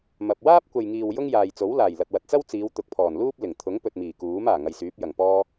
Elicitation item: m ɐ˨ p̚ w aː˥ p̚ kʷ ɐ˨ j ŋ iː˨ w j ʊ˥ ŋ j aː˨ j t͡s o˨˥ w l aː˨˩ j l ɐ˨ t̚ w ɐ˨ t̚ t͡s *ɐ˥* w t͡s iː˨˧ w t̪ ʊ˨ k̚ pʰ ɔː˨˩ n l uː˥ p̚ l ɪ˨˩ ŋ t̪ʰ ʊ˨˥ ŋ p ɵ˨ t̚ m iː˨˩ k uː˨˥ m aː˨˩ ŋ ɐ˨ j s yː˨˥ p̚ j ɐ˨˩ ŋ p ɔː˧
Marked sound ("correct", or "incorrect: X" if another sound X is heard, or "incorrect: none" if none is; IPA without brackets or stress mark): correct